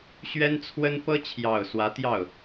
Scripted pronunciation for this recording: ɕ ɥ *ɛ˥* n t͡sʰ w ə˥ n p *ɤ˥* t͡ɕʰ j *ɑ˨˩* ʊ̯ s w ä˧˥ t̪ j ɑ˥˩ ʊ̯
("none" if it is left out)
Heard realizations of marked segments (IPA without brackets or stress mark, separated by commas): ɛ˥, ɤ˥, ɑ˨˩